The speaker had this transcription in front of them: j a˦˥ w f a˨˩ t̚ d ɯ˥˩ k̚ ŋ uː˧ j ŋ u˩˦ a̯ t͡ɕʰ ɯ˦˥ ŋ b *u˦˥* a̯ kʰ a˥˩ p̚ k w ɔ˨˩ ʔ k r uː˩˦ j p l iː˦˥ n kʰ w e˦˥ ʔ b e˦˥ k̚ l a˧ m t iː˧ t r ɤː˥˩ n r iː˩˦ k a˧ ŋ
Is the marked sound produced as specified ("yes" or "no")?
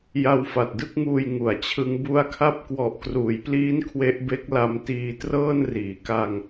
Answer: yes